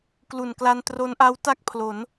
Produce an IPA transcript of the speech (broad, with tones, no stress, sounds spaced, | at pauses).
k l u˨˩ n k l a˧ n t r o˦˥ n ʔ a˦˥ w t a˥˩ k̚ pʰ l o˩˦ n